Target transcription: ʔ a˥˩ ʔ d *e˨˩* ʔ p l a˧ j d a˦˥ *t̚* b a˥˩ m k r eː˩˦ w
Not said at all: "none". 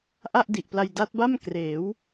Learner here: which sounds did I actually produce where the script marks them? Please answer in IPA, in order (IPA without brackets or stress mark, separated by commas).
i˨˩, t̚